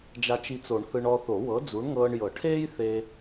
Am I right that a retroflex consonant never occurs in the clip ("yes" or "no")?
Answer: no